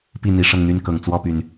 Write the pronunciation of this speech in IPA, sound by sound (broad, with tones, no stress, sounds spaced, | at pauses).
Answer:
p i˥˨ n̪ i˨˦ ʂ ɤ˥˨ ŋ n̪ y˦ n k ɤ˨˩ ŋ t͡s w ɔ˥˨ p y˩ n